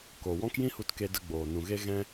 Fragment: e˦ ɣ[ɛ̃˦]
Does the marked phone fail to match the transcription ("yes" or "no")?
no